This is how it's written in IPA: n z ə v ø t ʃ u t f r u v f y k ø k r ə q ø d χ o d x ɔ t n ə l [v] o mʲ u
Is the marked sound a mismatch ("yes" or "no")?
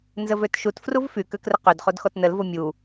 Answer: no